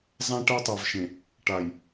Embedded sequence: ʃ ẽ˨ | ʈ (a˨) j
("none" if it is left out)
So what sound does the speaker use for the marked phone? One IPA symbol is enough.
a˨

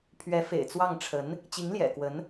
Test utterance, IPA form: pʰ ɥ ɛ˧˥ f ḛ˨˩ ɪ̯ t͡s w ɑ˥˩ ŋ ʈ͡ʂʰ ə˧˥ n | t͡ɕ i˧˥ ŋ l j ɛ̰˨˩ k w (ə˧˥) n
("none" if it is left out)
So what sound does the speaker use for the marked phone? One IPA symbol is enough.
ə˧˥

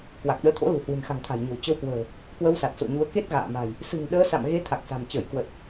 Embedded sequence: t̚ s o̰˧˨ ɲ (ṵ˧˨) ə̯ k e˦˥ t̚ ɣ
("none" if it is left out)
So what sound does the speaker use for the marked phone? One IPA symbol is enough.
u˨˦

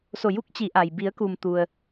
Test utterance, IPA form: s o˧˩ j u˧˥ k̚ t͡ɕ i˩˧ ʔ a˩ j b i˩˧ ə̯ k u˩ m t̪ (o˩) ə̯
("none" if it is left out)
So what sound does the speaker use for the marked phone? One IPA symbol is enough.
u˩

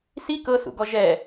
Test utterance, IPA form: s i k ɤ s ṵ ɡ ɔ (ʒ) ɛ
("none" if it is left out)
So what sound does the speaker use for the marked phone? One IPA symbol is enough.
ʒ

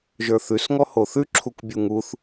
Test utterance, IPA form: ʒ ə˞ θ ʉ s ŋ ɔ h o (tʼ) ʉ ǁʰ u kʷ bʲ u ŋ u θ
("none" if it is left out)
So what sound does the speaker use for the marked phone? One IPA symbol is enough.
θ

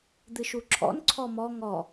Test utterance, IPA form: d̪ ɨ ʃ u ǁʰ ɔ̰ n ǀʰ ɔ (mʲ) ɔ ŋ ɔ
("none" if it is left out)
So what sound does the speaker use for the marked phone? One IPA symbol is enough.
m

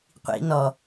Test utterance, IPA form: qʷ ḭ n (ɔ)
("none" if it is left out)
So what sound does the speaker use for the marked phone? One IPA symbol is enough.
ɔ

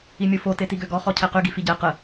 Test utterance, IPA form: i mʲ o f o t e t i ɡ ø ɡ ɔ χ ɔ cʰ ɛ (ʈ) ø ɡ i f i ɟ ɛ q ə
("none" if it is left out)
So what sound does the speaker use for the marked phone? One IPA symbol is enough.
q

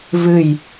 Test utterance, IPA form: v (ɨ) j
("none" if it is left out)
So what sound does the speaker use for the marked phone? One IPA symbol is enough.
ɨ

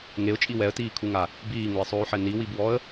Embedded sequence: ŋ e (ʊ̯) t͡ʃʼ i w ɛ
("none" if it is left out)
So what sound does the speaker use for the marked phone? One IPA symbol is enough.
ʊ̯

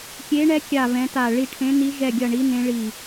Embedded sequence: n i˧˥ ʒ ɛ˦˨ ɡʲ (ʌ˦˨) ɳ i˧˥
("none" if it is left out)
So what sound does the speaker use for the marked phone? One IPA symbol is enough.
ʌ˦˨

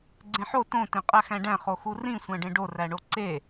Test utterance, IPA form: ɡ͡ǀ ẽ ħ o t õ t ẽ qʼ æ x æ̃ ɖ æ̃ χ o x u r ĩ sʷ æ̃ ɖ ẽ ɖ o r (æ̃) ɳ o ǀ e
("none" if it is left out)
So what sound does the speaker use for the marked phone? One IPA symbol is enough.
æ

